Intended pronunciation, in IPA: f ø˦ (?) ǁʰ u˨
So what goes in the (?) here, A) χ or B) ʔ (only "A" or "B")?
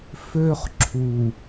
A